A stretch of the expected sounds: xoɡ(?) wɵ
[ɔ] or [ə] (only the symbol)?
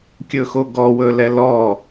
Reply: ɔ